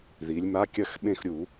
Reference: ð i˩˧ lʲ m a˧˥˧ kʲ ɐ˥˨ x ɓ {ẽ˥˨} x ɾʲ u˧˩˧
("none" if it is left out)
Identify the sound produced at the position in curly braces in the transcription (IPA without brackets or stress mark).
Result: ẽ˥˨